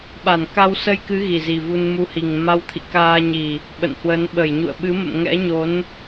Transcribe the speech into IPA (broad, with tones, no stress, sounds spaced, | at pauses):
ɓ a˧˩ n k a˧ w s ə˧ j k ɨ˨˦ ɣ i˨˩ z i˨˩ v u˧ n m u˧ h i˨˩ ŋ m a˧ w t̪ʰ ḭ˧˨ k aː˧ ɲ i˨˩ | ɓ ə̰˧˨ n h w ə˨˦ n ɓ ə˧˩ j ɲ ṵ˧˨ ə̯ ɓ ɨ˨˦ m ə̰˧˨ m ŋ ɛ̰˧˥ ɲ o˨˦ n